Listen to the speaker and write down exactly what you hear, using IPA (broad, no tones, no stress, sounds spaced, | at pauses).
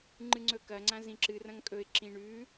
ŋ͡ǃ ɨ ŋ͡ǀ ɵ k ɐ ŋ͡ǀ ã z ĩ ǁ ɨ r ɐ̃ ŋ kʼ ɵ ɪ̯ ǁ ĩ ɳ ʉ